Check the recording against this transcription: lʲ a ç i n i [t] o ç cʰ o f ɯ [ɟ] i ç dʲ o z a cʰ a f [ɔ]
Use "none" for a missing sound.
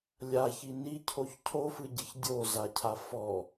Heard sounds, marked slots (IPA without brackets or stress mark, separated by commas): cʰ, ɟ, ɔ